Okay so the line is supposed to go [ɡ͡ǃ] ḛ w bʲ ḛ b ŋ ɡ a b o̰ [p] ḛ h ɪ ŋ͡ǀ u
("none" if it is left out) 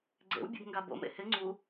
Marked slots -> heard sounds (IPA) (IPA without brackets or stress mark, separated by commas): ɡ͡ǀ, m